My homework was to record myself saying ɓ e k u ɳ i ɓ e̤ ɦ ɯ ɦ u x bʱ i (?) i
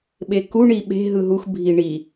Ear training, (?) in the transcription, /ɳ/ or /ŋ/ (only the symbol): ɳ